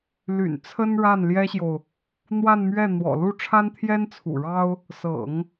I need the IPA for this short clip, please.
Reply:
l y̰˨˩ n t͡sʰ ə˥ n ɻ a˥˩ n l j ɛ˥ ɕ j o˨ ʊ̯ | n̪ w a˥˧ n m ɥ ɛ˥˩ n̪ w ɔ̰˨˩ l u˥˩ ʈ͡ʂʰ a˥ n t̪ʰ j ɛ˥ n t͡sʰ ṵ˨˩ ɻ ɑ˥ ʊ̯ | s ɤ̰˨˩˦ ŋ

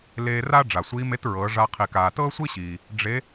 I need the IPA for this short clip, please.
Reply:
l eː˧ r a˥ ɖ͡ʐ a˩ sʷ iː˧˥ m e˧˥ t ɹ ɤː˩˧ ʐ a˧ qʰ i˩ k aː˩ t ɤː˥ sʷ i˥ ɕ iː˩ | ɖ͡ʐ e˧˥

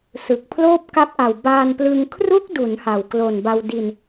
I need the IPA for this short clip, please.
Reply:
s ɯ˨˩ k̚ pʰ l oː˥˩ p̚ k a˦˥ p̚ ʔ a˨˩ w b aː˧ n p l ɯ˧ ŋ kʰ r u˦˥ k̚ d u˩˦ n h a˨˩ w k l o˨˩ n b a˧ w d i˧ n

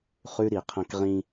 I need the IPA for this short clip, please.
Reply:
χ ʉ˦ ɾ i˨ qʰ ɐ̃˦ k ʁ ĩ˦

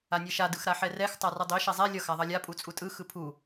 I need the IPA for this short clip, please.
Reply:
a nʲ e ʃ a d ɯ x ɾ a ħ ɛ r ɛ x tˤ a r ɯ dˤ i ʃ ɛ zˤ ɛ lʲ ʌ x a ðˤ ʌ lʲ a pʼ u t͡sʼ u tʼ ɯ x ɯ pʰ u

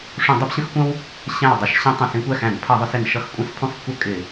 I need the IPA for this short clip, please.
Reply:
ʂ ũ˧˩˧ dˤ ə˦ p ɕ ə̃˦ x kʷ ə̃˦ w | ɕ æ̃˧˩ w dˤ ʌ˧˩ ʃ ɕ ĩ˦ tˤ ũ˧˩ s ĩ˦ kʷ æ˥˨ x æ̃˧˩˧ n pʰ ʌ˧˩˧ ðˤ ʊ˩˧ s ɪ˩ n ʃ ʌ˦ x kʷʼ ə̃˦ s pʰ ũ˥˨ sˤ kʷ ə˥˨ kʼ ɪ˧˩˧

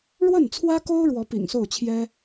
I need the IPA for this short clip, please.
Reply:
ɻ w ə˥˩ n t͡sʰ w ä˥ k o˥ ʊ̯ ɻ w ɔ˧˥ p ḭ˨˩ ŋ s o˥˩ ʊ̯ t͡ɕʰ j ɛ˥

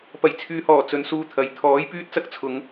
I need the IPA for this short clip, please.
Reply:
p ɐ˨˩ j t͡sʰ yː˨˧ h ɔː˨˩ t͡s ɵ˨ n s uː˧ t̪ʰ ɐ˨˥ j t̪ʰ ɔː˨˥ j p yː˥ t̚ t͡s ɐ˥ k̚ t͡sʰ ʊ˨˧ ŋ

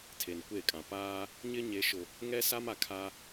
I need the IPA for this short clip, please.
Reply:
tʰ e˨ n kʷ e˦˨ kʼ ã˨ p aː˦ | ɲ ɪ˦ ɲ e˨ ʃ ʊ˨ | ŋ ɛ˦ s a˦ m a˨ kʰ a˦

